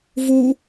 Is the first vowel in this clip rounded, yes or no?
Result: yes